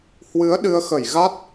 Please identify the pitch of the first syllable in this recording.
rising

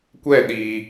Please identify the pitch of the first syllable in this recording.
falling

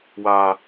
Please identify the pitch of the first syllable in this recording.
high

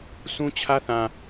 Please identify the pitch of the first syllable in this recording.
high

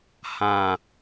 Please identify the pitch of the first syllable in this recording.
low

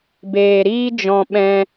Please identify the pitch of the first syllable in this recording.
low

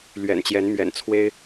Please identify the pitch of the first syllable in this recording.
low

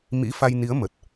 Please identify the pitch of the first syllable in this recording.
rising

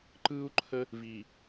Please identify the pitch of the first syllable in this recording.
high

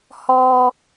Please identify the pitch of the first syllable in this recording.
low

